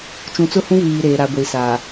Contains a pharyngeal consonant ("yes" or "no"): no